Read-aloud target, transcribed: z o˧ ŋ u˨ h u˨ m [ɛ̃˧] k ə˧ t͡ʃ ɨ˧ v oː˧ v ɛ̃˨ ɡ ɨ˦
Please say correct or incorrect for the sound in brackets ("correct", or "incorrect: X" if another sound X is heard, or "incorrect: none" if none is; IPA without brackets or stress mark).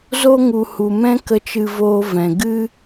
correct